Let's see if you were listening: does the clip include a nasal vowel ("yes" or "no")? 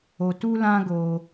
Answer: yes